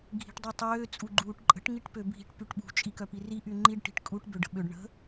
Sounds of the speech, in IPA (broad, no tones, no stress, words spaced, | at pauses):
ɡʱi̤ʈdˤitˤøː t͡sʼuɡ͡ǃuːʈǃʼə̤ʈ ŋiʈpøbʱi̤ʈ pyʈɓṳ t͡ʃʼikœpiri ʔyŋ͡ǃiɖ ʈi̤ʈkʼuʈ bøɖə̤ɓøɖ ɳə̤